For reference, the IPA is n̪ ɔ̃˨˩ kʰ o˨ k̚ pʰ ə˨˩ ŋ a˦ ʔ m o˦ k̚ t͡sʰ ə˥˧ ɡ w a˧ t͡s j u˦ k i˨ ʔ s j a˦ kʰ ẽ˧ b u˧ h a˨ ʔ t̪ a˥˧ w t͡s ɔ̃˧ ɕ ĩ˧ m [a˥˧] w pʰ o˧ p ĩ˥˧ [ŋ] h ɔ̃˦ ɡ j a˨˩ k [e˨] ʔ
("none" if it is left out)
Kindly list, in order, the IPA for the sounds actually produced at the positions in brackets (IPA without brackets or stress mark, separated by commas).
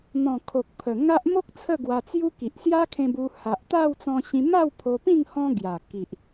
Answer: a˥˧, ŋ, i˨